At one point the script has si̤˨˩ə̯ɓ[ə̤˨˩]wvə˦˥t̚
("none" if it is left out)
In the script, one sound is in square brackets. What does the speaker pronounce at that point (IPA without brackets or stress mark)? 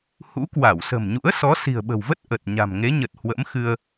ə̤˨˩